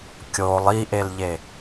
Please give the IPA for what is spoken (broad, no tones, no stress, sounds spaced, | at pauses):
kʲ o lˠ i ʔ e l ʎ e